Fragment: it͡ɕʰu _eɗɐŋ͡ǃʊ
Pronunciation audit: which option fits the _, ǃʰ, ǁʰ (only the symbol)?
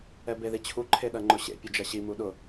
ǃʰ